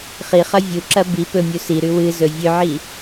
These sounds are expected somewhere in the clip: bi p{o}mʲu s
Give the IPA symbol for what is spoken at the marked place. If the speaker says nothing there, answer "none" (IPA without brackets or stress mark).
ɵ